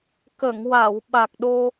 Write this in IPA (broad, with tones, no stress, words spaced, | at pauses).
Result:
kə˨˩˨ŋwa˨˩˨w ɓa˨˩k̚ɗo˧